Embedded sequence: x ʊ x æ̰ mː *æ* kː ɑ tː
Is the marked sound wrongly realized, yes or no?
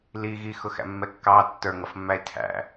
yes